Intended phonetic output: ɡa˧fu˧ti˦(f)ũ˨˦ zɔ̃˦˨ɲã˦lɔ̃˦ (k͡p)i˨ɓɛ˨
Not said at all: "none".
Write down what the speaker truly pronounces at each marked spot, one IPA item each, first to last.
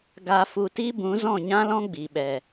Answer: b, ɡ͡b

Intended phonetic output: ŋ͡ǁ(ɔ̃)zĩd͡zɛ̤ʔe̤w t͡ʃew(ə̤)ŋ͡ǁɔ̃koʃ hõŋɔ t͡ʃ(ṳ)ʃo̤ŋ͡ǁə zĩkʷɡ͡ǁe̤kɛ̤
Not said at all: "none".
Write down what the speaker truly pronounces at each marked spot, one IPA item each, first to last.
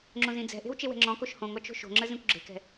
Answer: õ, ɛ̤, o̤

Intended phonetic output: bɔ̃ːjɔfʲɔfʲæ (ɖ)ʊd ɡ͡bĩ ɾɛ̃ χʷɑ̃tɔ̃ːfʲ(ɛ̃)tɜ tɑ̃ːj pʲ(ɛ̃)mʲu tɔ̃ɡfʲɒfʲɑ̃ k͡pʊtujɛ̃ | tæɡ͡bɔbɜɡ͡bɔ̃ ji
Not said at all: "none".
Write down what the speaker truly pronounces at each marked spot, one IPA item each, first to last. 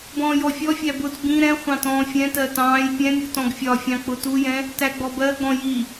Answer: b, ɛ̃, ɛ̃

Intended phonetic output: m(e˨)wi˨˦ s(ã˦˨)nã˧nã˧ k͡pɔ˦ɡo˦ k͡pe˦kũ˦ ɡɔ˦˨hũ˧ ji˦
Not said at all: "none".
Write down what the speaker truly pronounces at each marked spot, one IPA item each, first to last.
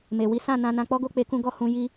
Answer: e˨, ã˦˨

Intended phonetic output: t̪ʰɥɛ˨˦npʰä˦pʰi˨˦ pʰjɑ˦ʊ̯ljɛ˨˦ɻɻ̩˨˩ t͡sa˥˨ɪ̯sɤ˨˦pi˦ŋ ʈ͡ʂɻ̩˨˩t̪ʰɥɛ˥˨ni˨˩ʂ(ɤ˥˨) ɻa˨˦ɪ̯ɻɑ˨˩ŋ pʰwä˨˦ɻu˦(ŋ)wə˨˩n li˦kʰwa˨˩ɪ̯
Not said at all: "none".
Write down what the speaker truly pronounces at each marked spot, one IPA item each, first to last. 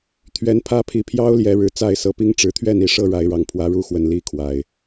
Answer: ɤ˥˨, x

